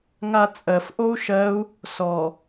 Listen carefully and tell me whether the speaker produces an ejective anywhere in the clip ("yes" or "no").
yes